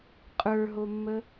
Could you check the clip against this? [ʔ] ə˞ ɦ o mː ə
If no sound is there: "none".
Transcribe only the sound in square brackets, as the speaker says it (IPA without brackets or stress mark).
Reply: qʼ